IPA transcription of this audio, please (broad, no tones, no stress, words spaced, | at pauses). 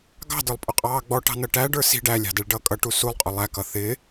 ɡɑ̤də˞lˠpʼʊqʼɑː ɡ͡bɔʈɑ̤nʌ ʈæɖə˞ si̤ ɖælʲɑ̤dɛɭɖʌː kʼʌʈu sulˠqʼʊ lˠækʌ θɪ